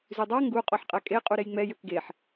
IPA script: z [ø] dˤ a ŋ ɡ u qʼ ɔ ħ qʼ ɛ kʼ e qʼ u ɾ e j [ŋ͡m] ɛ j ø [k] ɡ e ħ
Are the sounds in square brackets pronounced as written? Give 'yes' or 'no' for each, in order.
no, yes, yes

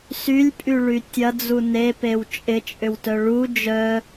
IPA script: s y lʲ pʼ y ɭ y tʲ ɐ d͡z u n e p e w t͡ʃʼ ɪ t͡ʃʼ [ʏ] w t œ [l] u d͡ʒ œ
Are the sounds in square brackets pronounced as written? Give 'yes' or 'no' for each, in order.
yes, no

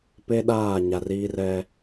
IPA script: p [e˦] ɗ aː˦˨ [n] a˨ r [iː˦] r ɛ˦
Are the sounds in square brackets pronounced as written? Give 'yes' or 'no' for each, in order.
yes, no, yes

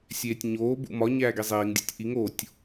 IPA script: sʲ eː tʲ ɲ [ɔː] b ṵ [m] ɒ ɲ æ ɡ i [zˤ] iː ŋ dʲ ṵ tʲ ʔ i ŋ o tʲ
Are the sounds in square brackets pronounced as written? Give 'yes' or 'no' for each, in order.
no, yes, yes

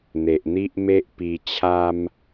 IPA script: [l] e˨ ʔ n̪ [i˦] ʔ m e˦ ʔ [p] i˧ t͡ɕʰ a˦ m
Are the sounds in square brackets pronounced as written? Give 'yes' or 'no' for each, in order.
no, yes, yes

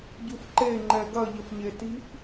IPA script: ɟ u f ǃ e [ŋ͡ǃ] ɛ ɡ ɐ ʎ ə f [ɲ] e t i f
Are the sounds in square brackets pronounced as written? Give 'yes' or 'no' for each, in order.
yes, yes

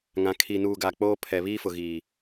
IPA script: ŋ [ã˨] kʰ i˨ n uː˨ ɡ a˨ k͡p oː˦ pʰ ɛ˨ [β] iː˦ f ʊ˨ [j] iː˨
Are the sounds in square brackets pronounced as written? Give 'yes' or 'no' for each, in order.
yes, yes, no

